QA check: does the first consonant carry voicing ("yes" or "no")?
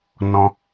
yes